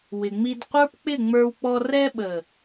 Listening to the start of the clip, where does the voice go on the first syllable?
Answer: low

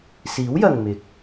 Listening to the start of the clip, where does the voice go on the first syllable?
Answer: rising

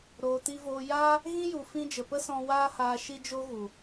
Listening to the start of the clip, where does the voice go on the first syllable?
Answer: low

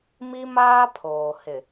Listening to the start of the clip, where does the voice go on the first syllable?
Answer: high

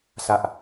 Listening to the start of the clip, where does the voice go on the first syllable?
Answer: low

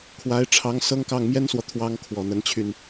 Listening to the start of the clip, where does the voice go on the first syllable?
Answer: rising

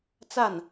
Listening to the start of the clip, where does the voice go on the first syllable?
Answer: falling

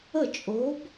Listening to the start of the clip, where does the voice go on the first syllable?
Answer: falling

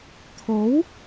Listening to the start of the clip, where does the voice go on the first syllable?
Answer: rising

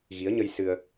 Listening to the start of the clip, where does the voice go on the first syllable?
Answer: rising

